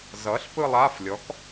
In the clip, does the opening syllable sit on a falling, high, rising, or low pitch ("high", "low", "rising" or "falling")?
rising